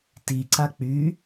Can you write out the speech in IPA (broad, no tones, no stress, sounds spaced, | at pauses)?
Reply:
t i ǀ a k͡p y